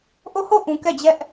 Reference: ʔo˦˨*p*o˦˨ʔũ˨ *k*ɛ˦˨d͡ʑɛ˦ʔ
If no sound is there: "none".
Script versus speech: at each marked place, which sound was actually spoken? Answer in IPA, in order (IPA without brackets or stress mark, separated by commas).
h, k